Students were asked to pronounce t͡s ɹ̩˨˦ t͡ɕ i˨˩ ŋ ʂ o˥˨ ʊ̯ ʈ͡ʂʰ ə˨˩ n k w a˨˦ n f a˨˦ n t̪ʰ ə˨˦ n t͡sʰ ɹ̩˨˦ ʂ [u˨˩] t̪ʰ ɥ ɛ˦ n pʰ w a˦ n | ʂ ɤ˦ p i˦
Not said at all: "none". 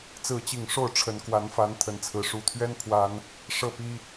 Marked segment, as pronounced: u˨˩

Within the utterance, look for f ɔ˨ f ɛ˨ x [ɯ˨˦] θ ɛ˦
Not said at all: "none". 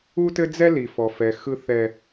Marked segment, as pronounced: ɯ˦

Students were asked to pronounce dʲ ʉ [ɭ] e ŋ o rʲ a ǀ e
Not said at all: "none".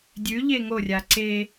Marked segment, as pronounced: ʎ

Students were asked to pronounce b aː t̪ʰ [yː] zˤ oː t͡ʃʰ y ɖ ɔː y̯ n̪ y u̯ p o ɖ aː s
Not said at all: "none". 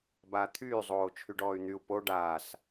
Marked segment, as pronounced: yː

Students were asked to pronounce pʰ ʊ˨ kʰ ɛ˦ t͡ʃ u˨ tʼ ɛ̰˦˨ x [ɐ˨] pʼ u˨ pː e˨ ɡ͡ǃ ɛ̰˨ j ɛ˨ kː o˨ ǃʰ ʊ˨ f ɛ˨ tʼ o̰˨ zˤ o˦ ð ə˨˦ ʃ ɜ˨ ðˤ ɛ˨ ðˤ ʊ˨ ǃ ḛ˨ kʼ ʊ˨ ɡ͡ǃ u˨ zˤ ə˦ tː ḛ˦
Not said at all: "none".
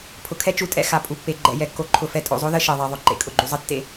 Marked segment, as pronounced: a˨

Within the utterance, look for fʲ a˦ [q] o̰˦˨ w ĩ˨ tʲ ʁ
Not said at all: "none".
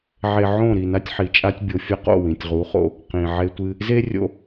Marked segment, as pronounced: q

